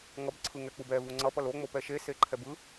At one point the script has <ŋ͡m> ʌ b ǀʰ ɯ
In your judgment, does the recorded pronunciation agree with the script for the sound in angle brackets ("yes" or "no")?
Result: no